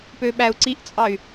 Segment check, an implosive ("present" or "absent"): present